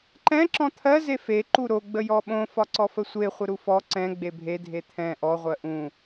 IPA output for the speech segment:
ǃɛ̃ ǁɔ̃t̪ʰɜ zefe ǃuɾo ɡ͡bəjɔɓõ fɒǀɔfəsʷe χʷəɾufɔ ǀɛ̃ ɡ͡bebʱe dʱet̪ʰɛ̃ ʔɔ ʁʷɜʔũ

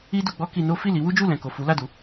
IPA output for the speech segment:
i˧ du˧ɡ͡bɔ˦ki˧no˦ fi˦˨li˨˦wu˦d͡ʒu˦˨ lɛ̃˨ko˨ fu˨˦la˦˨du˨˦

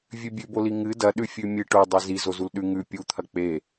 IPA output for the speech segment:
vʲʉbʲʉboli ŋɨ dɐɗʉfʲʉ mʲɨ ʈo dˤezi zozulɗʉ ŋʉ pʲut̪ʰɐ k͡pe

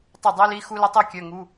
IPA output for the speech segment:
tˤʊ˥˩dˤi˥li˧˥˧ xu˥lɐ˥tˤi˥ kʲœ˧˥˧ŋu˧˥˧

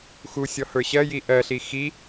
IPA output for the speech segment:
xusʲɔ hə˞ɕɜji ʔɜɬi xi

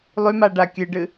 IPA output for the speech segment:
lˠymaɖa kʲɨɖɨ

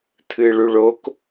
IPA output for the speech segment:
t̪ʰɨɭuɭok

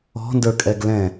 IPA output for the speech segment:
ɔ̤ndə˞kʼɛɡ lɛ̃

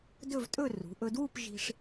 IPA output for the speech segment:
dɵ˥˧vtʼɵ˥˧ rṳ˩˧ʔɵ˧dwu˥˧p ʒi̤˧ʂ

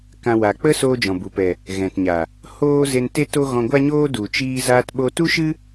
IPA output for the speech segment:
kã˦wa˧ k͡pə˦ soː˦d͡ʒɔ̃˨bu˨pɛ˨ | ɣɛ̃˨tɲa˨ | hoː˦ze˧nte˦to˦ ɣɔ̃˧ɡʷa˦ɲoː˦ du˨t͡ʃiː˧ zaː˧tɓo˧tu˦ ʃɨ˦

